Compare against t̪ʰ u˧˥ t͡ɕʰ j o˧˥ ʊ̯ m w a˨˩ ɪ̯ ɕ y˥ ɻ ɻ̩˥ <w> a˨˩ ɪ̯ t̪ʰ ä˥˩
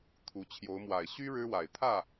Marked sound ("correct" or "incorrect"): correct